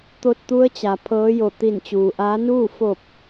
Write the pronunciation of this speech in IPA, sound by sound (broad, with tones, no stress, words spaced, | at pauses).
t̪o˧t̚t̪u˧˥ə̯t͡ɕa˩ pʰɤː˧˥jo˧˩ t̪i˧˩nt͡ɕuː˩ʔaː˧˥ nuː˥˨ fo˧˩p̚